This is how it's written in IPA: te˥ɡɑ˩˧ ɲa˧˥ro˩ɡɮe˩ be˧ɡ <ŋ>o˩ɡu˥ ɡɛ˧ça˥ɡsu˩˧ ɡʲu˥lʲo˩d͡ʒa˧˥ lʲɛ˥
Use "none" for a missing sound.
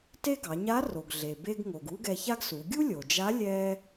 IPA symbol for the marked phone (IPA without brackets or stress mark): ŋ